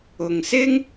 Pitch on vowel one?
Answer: low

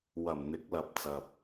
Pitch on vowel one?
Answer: low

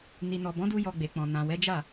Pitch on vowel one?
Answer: low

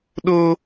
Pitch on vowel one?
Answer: high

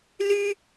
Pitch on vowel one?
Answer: high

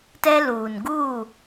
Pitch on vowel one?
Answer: high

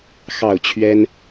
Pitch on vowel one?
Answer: falling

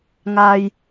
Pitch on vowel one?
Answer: low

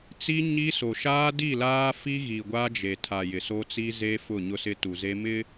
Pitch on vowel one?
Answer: high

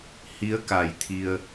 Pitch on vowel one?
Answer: rising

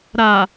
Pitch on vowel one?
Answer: low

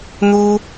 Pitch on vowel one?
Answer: high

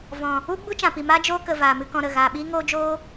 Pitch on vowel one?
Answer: low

